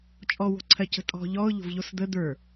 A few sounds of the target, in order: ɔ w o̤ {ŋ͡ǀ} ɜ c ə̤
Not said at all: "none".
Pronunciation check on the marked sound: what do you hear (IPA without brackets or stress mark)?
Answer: ǀʰ